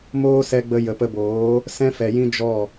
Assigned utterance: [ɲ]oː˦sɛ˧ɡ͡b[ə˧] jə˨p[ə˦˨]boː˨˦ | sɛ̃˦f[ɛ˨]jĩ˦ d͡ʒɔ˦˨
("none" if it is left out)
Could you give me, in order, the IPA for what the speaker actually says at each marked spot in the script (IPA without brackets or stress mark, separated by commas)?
m, ə˧, ə˧, ɛ˨